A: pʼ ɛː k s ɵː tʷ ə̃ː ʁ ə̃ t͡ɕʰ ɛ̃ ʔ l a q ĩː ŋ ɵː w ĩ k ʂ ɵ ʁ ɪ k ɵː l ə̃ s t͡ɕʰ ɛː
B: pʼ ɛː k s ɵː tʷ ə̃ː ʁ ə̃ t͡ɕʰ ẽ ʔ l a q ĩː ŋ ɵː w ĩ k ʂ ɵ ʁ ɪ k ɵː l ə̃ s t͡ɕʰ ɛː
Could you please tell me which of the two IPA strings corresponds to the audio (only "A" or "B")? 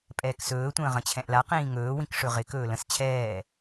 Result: A